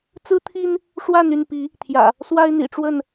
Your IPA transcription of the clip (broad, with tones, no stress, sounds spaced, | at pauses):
t͡s ɹ̩˦ t̪ʰ i˦ n | ʂ w a˥˨ n y˥˨ n p i˨˦ | t̪ʰ j ä̰˨˩ | s w a˦ ɪ̯ n̪ ḭ˨˩ ʈ͡ʂ w ə˥˨ n